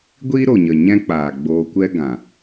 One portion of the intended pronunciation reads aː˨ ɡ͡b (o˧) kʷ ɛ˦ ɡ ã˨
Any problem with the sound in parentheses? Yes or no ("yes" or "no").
yes